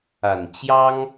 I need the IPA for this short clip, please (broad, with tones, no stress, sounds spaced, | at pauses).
a˨˩ n t͡ɕ j ɑ˦ ŋ